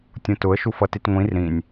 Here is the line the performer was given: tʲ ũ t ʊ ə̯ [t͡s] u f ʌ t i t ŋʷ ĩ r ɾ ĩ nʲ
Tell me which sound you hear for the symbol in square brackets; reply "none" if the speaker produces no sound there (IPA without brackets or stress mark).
ʃ